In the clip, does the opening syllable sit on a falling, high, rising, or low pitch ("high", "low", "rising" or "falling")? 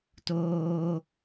high